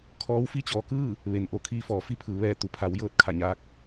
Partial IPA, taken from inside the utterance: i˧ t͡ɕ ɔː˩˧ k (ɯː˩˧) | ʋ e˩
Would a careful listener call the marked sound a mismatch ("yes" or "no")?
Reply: yes